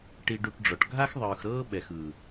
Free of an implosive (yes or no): no